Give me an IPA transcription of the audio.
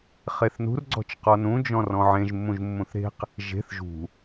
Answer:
χeθnṳr ɡ͡ǀɔ̤t͡ʃqɔnũ d͡ʒɔ̃rɔ̃ʕẽʒ mːũʒmːũθɾe̤q | ʒe̤θ ʒṳ

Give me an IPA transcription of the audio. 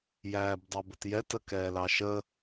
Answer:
jæːbdˤɑbətjɛt əkɛːlɑʃə

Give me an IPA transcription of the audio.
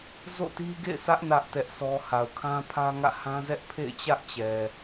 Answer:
zo̰˦˨ti˦ɡḛ˦˨ɪ̯sʰä˦ʔ nä˦ʔtɛ˦ʔsʰɔ˦ ha˨ʊ̯kʰã˦pʰä˦ŋä̰˦˨ hã˦zɛ˦ʔ pʰḛ˦˨ɪ̯t͡ɕä˦ʔt͡ɕɛ˨

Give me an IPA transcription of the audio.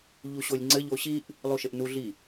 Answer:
ʎuɕolʲŋ͡ǀɘ ʎoɕiʔ | lˠuʃɘʔnuɮi

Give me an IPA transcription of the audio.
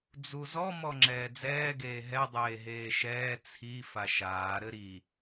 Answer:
d͡zuzɔ mɔŋ͡ǁɛːd͡zɛː ɡeːɦɛ dˤeːɦeːʃɛː t͡sʰi faʃaː ɾɘɾi

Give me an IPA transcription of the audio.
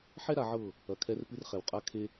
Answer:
ħɛ˦ɾa˨ʕɤ˦˨ | ɐ˨ kʰɛ˦rpɨ˦rχɛ˨w qʼa˦kʰe˦

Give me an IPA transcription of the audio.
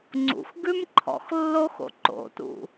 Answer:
ŋ͡ǀṵxɡʉm ǃʰɔ̰xlːoxo̰ ǃo̰tṵ

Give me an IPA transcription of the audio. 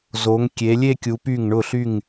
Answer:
zo˩˧ŋkʲe˩˧lʲe˥˧kʲu˩˧ py˧˩ŋɳʊ˧˩ɬy˧˩ŋ

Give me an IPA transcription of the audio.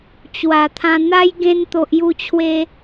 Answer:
t͡ɕwa˨˩t̪ʰã˧n̪a˦j ɡẽ˧nt̪o˨ʔ ju˧t͡ɕʰwe˧

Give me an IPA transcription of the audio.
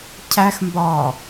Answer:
cʰæxmbɒː

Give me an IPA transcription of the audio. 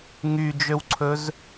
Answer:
ŋyd͡ʒøwǀʰɵz

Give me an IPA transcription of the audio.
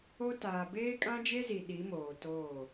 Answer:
o˦ taː˨ beː˦kʼã˦d͡ʒe˦zi˨ ɗi˨˦moː˨toː˦˨

